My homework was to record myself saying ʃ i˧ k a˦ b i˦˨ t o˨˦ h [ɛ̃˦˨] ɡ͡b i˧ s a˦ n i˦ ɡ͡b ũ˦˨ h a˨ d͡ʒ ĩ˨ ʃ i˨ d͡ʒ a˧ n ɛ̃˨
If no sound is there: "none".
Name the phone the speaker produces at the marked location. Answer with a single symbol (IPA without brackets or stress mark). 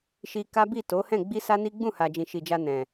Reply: ɛ̃˦˨